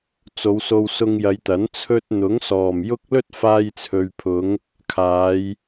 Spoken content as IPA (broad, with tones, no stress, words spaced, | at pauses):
t͡so˨˧wso˧wsʊ˧ŋ jɐ˨˧jt̪ɐ˨˥n t͡sʰɵ˧t̚n̪ʊ˨˥ŋ sɔː˨˩mjʊ˥k̚ lɵ˥t̚faː˧jt͡sʰɵ˨ɥpʰʊ˨˧ŋ | kʰaː˨˧j